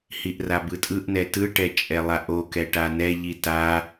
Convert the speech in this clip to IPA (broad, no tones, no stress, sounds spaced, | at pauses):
h i ʔ r a b ɯ tʼ ɯ ʔ n ɛ t ɯ ʈ ɛ t͡ʃʼ ɛ lˠ a ʔ o k ɛ ʈ a n ɛ ʎ i t a